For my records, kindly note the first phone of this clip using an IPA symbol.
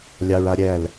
lʲ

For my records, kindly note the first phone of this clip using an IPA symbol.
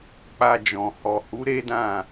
k͡p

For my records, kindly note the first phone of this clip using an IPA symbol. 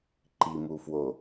ǃ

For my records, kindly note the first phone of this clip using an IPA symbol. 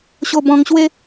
ɕ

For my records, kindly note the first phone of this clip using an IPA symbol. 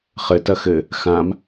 χ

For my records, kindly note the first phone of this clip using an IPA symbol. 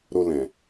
ɾ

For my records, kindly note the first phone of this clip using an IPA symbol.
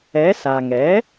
ɛ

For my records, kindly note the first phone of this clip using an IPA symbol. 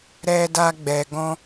ɾ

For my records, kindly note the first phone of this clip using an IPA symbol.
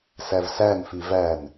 s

